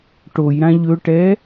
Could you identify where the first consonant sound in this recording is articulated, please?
retroflex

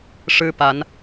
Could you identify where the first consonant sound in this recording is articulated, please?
retroflex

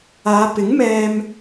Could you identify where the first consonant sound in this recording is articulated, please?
labial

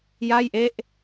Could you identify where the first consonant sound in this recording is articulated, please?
palatal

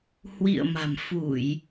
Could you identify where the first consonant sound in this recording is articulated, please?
glottal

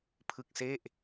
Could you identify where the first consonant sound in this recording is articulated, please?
labial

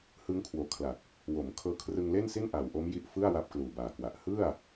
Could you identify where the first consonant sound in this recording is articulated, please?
glottal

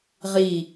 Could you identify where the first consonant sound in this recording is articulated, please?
uvular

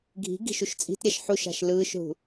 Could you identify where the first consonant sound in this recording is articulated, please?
velar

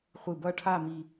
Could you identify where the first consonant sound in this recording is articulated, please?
uvular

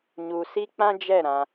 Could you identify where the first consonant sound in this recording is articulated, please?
palatal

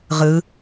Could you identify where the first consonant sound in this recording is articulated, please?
uvular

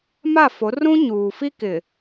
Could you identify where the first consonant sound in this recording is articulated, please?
labial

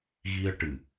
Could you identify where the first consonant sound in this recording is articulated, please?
velar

